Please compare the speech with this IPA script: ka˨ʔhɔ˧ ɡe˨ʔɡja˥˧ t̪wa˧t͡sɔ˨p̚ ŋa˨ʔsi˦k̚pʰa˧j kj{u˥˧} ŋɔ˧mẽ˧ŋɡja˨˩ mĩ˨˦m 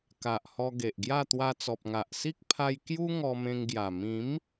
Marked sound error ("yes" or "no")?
yes